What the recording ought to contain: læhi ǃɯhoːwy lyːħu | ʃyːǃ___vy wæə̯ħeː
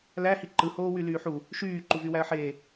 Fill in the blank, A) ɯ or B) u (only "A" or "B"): B